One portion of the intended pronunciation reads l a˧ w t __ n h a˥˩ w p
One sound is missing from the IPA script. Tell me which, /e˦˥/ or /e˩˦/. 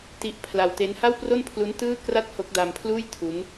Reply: e˦˥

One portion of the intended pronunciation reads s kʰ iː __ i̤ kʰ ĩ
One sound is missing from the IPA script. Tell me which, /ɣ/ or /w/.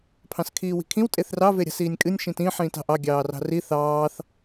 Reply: w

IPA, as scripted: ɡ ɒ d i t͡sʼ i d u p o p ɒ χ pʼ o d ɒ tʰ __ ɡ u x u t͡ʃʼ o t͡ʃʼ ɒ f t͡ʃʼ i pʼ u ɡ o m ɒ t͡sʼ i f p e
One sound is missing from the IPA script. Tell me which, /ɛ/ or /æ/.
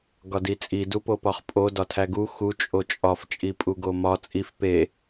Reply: æ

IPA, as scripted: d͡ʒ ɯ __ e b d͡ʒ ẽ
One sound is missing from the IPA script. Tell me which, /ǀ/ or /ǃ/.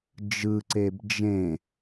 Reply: ǀ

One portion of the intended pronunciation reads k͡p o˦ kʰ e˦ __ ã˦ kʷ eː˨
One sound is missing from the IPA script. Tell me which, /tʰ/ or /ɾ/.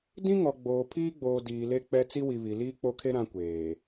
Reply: ɾ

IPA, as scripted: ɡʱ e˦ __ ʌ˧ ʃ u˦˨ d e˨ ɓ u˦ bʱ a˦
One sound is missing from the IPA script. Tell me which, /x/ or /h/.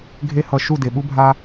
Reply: h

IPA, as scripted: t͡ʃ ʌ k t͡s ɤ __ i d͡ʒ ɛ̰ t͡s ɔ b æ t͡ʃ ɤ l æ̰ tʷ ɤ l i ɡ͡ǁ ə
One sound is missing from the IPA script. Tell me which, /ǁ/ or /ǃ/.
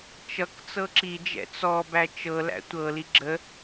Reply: ǁ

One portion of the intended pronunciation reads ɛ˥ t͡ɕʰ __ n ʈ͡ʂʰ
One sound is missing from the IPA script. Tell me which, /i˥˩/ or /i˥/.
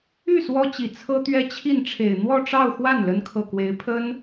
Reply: i˥˩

